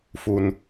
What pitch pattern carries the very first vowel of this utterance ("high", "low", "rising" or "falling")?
low